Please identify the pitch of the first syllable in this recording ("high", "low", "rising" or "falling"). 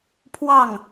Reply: falling